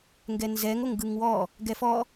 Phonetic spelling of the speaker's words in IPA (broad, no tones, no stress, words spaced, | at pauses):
ŋɡɛnzɛŋ oŋɡɯŋwɔ | ɡɛfɔ